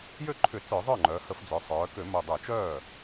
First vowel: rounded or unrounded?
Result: rounded